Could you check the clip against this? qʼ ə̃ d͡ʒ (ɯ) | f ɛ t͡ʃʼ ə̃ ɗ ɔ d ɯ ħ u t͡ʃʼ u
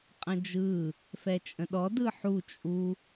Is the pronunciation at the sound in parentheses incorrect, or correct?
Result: correct